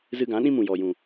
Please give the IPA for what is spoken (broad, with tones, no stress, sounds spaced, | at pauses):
z ɨ˧ ɡ ã˨˦ ɗ ĩ˦ m ũ˨ j ɔ˨ j ũ˨